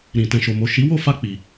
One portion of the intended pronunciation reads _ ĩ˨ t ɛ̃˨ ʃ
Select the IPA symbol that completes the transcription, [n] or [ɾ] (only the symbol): ɾ